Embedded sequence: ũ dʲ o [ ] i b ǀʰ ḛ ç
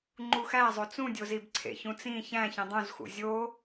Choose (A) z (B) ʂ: A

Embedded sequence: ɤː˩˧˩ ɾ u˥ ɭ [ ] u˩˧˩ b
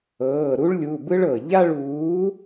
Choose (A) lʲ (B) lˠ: A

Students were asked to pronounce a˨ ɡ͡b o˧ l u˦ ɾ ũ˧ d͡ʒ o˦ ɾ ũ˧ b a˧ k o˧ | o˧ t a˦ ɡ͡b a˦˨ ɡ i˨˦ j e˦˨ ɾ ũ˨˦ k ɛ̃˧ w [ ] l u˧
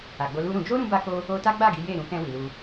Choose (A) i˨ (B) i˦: A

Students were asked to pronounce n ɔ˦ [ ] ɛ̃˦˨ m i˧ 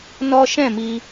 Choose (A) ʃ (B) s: A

